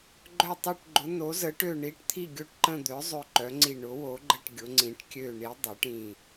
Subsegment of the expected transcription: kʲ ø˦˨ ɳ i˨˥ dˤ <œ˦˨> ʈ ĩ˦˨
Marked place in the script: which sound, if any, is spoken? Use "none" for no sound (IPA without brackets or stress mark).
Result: œ˨˥